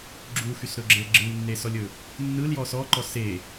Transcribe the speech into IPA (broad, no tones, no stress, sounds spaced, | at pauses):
ɡ͡ǁ u x y s ɾ ɵ ɡ͡ǁ e ɡ͡ǁ ɯ w nː e s ɔ lʲ ɵ | nː ɯ l j ɔ s ɔ ǃ ɔ s e